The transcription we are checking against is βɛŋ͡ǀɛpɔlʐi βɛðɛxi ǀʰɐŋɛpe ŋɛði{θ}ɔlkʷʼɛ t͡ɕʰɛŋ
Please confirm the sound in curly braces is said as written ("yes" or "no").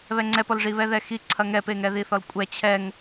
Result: yes